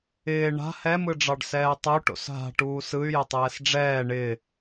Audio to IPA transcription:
ɪː ɳa̤ hɛmɯɖ͡ʐɑɖsɛː tˤu ʈo̰sɦa̤ ʈuːsɯy̯jɪ tˤɛːsɖ͡ʐɛː ɳɪ

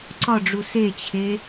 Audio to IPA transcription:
ǀɒɖ͡ʐu set͡ɕʰe

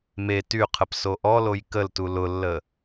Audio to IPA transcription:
me tyqʰəp soʔɔloj kəltu lʊlːə

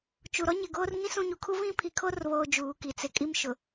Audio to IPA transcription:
t͡ʃu˨ɾɔ˦ ɲɪ˨ɡoː˦r ŋĩ˦sũ˦˨ɲu˨kʰu˦ vĩ˦pʰi˨kʰo˦r βoː˦d͡ʒuː˨˦ki˨ t͡sɪ˨kʼi˦mʃʊ˨

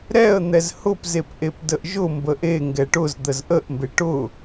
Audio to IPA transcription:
ɾɛə̯ n̪ɛzhʊpzep ʔepdəʔʒʊmbə ʔe ŋɡɛʈʊzd̪əz ʔəʔmbe ʈʊ

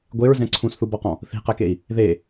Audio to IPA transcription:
ɡʷeɹzɛ̃ ǀʰũsθubɔqɔ̃ | θi̤qɛkei̯ | ðe

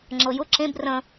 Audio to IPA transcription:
ŋ͡ǁɤjʊ ǁẽb rə̃

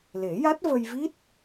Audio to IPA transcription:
le˨˩˦ja˦˥t̚və˧jvi˦˥t̚

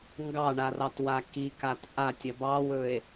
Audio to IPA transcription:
ŋɡɑɳarɑtwa kikat ʔatʲɐ bɑwɵe̯

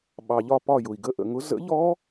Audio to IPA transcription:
ɓɑ˩ʎɒ˧˩pɒ˧˩ jʊ˩i̯ɡə˨˥ ʔə̰˧˩ŋʊ˨˥ zə̰˨˥ʎɔ˦˥

